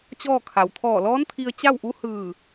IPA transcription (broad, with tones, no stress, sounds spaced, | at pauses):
t͡ɕ ɔː˥˨ kʰ a˩ w t̪ʰ ɔː˧˩ l ɔː˧˥ n t̪ʰ i˧ ə̯ t͡ɕ a˥˨ w ʔ u˧˥ h ɯː˧˩